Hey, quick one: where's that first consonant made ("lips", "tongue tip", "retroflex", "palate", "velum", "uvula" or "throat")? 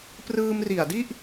lips